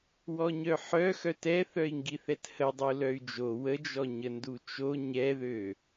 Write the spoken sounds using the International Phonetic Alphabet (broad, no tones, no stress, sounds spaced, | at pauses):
w ɔ ɲ œ ħ œ x œ t ɛ θ œ i̯ ŋ ɡ i θ ɛ t h ə dˤ u l œ y̯ d͡ʒ o w ə d͡ʒ ɔ ɲ ə n d u t͡ʃ o ɲ ɛ ð ø